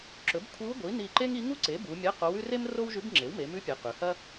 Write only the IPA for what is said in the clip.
ǁɵ˩˥b kʷʰi˧˥wɡʷi˩˥ ni˧˩ǃe˥ŋ i˧˥ ŋu˥ǀe˩˥bu˩˧ mʲɐ˧˥˧qo˧˥wʉ˥ re˥m ro˥wʒʉ˧˥bŋ͡ǁe˩˥w me˩˧mʉ˧˥pʲe˩˧ qʉ˩˧hɐ˥

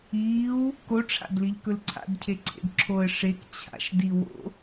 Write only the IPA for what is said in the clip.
iːw | koʈ͡ʂʰa̰dliʎkɵl ǀʰa̰dcʰeǀʰḛd ǁʰoə̯ ʂek t͡ɕʰa̰ʃdi wo̰

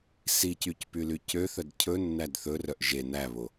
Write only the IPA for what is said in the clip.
sicycpyly cøθœd cʰɵnːæd θɵrœʔ ʒe næβo

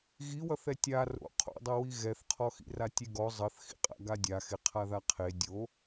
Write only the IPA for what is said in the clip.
ɣiwʌθ ɛtʲa ro̰ qʰo̰dˤɛwi ɣɛθqʰɔxḭra tʲeɡɔ zˤʌθxḭqʼa̰ ɡadʲa xeqʰaðaqʰe dʲo

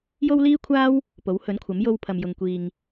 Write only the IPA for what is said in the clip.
jo˥wliː˥kʷʰaː˥w | po˨˥whɵ˨˥nkʷʰɐ˨˥m jo˧wpʰɐ˨mjʊ˨ŋ kʷiː˨ŋ

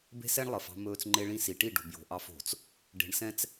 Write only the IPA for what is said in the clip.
be̤˦sɛ˦ɳlˠə˨f ɑ̤˦mɵː˦t͡s ŋ͡ǃe˦ɭĩ˦ si˨ʈi˦˨ɖo̤˨bjo̤˨ ʔɑ˦fo̤˨t͡s | ɖe̤˨ɳsɛ̃˦t͡s

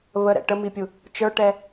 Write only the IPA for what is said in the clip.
βəɾɛ̰ ʈəmipʲu | t͡ʃə˞ʈɛ

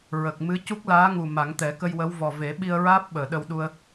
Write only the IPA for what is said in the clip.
ɹə˨˩k̚ mɨ˧˥ cu˦˥k̚laː˧˥ŋu˨˩ ma˨˩˦ŋt̪ɛ˨˩˦kə˧jwə˧˥w vɔ˨˩ve˨˩˦ ɓi˧ə̯ɹaː˦˥p̚ɓəː˨˩˨ ɗə˧wɗu˧ə̯

